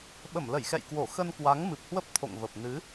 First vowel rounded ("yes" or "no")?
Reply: no